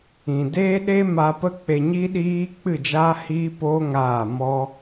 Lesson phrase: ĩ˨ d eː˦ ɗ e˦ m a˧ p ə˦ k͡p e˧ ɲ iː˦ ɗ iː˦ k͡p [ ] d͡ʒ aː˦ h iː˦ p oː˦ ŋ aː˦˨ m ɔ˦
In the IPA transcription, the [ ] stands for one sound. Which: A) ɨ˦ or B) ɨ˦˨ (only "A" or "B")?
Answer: B